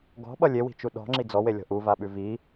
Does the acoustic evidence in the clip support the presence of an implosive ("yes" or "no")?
yes